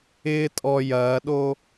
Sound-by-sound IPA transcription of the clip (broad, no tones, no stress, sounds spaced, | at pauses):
ɪː tʼ ɔ j ɐː ɗ o